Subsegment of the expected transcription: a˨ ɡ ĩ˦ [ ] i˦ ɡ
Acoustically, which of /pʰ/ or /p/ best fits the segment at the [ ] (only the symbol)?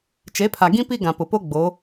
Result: p